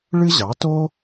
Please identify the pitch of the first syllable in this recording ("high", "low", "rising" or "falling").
high